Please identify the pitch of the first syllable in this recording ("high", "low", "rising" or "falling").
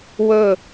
falling